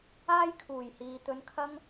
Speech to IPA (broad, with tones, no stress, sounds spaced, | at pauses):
aː˥ j kʰ uː˨˩ j h iː˨ t̪ ɵ˧ n kʰ ɐ˥ ŋ